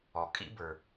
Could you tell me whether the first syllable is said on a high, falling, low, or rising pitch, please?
low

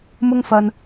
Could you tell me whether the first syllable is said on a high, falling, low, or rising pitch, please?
high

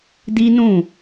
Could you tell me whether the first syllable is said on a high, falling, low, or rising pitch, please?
high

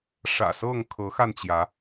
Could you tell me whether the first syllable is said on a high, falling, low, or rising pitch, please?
low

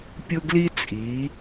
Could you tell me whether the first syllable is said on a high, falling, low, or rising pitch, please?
high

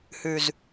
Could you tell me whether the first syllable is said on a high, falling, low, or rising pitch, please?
low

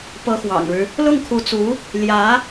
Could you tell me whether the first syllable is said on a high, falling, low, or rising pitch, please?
rising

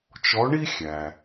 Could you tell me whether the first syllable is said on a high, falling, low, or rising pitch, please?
rising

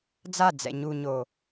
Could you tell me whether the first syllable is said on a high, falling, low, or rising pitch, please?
falling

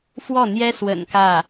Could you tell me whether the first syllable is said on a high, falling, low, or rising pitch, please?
falling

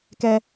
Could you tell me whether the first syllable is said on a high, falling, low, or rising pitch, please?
high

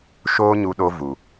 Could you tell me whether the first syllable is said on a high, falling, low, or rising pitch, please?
high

